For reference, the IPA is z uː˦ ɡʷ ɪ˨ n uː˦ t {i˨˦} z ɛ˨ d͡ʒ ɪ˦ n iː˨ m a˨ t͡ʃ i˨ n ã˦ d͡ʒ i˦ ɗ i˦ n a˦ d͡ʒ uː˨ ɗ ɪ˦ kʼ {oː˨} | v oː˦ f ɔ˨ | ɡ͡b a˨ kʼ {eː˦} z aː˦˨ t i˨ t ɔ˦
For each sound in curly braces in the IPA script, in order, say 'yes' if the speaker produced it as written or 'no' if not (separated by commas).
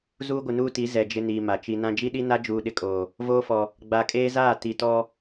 yes, yes, yes